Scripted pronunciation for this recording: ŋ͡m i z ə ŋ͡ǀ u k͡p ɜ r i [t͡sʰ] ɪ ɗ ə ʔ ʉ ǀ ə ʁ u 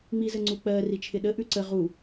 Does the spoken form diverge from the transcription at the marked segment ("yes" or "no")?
yes